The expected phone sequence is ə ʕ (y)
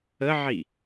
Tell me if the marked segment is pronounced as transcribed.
no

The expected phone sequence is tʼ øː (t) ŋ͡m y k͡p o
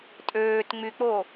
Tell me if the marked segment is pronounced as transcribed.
yes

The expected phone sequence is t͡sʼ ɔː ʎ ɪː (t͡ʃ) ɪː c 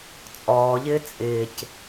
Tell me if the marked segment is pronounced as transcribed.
no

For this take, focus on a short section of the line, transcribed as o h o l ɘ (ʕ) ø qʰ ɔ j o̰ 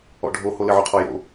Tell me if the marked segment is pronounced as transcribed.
yes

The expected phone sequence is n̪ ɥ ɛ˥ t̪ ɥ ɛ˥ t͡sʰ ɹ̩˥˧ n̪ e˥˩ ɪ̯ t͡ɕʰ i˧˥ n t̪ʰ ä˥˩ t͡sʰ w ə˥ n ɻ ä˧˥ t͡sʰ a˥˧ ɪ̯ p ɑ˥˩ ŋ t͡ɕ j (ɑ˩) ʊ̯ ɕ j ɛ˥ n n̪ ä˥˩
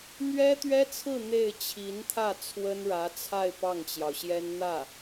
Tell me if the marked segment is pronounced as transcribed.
yes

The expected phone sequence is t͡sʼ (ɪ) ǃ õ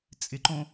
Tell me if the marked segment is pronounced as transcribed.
yes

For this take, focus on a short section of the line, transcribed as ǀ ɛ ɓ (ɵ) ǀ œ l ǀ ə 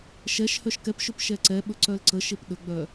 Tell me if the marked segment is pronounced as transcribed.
yes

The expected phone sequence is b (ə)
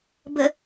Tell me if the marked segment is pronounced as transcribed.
yes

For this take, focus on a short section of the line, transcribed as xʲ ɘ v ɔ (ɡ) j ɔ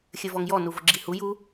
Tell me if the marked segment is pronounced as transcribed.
no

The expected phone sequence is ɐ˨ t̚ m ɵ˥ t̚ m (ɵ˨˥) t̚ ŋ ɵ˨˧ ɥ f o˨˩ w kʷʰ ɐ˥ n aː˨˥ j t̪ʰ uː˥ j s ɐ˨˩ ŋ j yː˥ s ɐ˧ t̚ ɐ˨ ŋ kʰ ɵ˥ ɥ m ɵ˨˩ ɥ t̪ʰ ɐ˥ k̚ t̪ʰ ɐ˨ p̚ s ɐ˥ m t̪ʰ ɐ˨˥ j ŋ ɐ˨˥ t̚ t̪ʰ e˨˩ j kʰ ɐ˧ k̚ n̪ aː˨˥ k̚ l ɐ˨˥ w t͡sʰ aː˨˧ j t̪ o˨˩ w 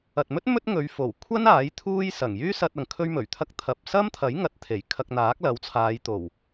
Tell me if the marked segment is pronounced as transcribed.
no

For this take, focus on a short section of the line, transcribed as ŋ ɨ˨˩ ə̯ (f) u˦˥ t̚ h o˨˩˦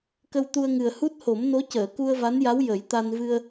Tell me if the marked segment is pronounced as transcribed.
no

